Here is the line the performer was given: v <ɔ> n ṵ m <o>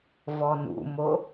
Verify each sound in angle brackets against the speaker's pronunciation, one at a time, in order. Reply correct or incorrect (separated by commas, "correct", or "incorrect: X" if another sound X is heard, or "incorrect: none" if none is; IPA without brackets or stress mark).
correct, correct